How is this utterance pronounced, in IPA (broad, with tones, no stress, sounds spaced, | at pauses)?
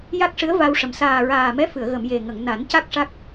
j a˦˥ k̚ ʂ ɨ˧˥ ə̯ v a˧ w ʂ ə˨˩ m s aː˨˩ ɹ aː˨˩ m ɛ˧˥ f ɨ˨˩˨ ə̯ ɣ ə˨˩˨ m j e˨˩ ŋ ə˨˩˨ ŋ n a˨˩˦ n c a˦˥ k̚ ʂ a˦˥ k̚